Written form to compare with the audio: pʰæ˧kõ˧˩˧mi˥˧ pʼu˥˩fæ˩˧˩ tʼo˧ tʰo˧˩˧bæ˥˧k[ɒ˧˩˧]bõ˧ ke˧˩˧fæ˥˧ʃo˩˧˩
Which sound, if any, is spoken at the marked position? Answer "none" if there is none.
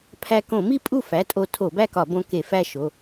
ɒ˧˩˧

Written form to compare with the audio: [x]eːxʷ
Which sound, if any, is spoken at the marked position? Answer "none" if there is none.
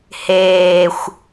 h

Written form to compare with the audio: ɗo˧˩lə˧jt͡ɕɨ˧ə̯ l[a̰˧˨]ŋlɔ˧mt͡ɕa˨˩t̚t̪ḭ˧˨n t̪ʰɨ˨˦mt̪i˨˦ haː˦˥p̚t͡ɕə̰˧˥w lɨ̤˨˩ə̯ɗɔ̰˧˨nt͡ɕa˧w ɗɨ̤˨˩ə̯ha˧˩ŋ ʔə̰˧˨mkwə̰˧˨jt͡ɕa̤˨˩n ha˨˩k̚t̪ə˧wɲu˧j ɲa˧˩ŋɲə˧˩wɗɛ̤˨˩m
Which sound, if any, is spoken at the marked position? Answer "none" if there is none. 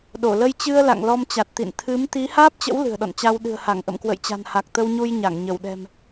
a̰˧˨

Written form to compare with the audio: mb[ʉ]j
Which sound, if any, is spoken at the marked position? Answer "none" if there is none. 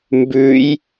ʉ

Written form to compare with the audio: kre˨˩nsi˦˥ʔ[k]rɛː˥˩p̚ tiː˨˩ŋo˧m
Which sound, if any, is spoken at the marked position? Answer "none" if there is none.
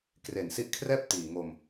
kʰ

